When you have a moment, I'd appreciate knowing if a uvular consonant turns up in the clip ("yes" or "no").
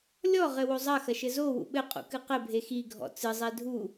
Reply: yes